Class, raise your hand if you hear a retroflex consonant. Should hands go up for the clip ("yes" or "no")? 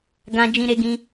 no